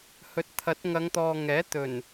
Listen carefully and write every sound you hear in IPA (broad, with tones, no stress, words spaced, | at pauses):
hɵ˨˥t̚t̪ʰɐ˨˥t̚ŋɐ˨˧ŋt̪ɔː˨ ŋɛː˨˥t̪ɵ˨˩n